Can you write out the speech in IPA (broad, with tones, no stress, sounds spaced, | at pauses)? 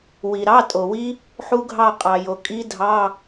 w i˩ ɾ ɑ˧˥˧ tʼ o˩ w i˦˥ | ħ u˦˥ ɡʱ ɑ˦˨ qʼ ɑ˩ j o˩ kʼ i˦˥ dʱ ɑ˧˥˧